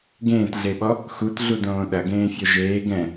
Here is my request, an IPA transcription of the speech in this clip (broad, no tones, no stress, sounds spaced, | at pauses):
ɡ ẽː t ɮ e ɓ ɔ | x u t ɮ u d õː ɗ ɐ ɡ ẽː fʲ o ʒ eː ɡ ɛ̃